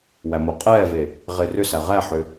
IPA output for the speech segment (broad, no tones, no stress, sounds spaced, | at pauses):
w æ m o qʼ ɛː v e | ʁ e r ʏ s æ ʁ æ ħ ʏ